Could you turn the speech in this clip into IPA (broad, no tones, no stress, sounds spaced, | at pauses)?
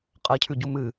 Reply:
qʼ ɜ cʰ ʉ ɟ u m ɨ